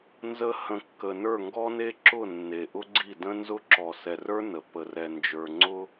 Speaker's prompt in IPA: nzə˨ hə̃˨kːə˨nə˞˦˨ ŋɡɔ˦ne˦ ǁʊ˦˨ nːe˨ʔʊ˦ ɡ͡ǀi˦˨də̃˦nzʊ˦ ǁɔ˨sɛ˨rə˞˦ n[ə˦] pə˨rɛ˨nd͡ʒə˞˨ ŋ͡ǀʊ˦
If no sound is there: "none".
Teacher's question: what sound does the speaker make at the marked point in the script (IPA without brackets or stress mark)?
ə˨